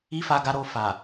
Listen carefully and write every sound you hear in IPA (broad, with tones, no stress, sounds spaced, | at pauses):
i˦ f a˧ ɡ a˧ ɾ o˧ f a˨